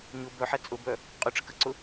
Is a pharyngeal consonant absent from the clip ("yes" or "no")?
no